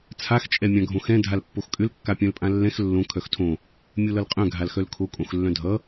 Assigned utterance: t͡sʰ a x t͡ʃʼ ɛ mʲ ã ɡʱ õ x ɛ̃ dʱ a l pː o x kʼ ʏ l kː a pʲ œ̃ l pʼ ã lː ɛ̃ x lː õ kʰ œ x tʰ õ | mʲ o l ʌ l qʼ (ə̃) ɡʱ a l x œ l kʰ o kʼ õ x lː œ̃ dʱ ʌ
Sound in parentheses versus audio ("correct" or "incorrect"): incorrect